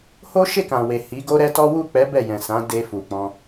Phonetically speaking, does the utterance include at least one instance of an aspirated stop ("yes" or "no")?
no